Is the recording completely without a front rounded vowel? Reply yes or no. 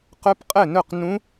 no